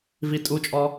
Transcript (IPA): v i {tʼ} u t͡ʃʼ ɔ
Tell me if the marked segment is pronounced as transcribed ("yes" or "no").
yes